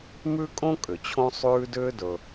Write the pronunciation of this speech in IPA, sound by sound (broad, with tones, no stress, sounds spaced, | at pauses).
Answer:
m ʉ˥ kʼ õ˥ kʼ ʏ˩ t͡ɕʰ õ˥ sˤ ʉː˥ d ʏː˥ d ɵ˩